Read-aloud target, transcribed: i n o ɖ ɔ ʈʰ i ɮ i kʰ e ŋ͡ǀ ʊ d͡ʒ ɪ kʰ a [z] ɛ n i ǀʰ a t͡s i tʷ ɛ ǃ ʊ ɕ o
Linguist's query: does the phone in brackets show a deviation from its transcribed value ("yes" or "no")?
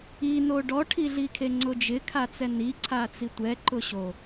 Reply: yes